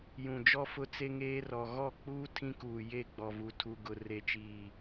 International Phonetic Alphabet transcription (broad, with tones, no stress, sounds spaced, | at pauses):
j ũ˨ d͡ʒ ɔ˦ f ʊ˦ t͡s e˦ ŋ eː˦ r ɔ˨ ɣ ɔ˦˨ k͡p uː˦ tʰ ĩ˦ k uː˨ j e˦˨ ɡ͡b ɔ˨ v u˨ tʰ u˨ ɡ ʊ˨ r e˨ t͡ʃ iː˨